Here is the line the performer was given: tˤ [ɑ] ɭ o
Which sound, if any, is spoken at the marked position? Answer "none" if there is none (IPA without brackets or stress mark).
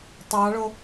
ɑ